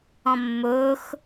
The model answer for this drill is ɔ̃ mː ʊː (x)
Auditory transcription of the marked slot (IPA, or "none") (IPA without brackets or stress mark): x